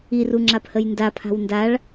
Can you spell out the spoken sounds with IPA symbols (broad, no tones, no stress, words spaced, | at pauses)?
iru ŋ͡ǁaphəjndapʰa̤w ndaɭ